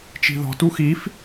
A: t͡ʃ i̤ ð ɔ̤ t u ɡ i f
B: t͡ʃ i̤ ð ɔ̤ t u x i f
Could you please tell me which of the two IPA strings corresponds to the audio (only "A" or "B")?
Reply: B